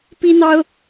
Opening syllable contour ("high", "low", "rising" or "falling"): high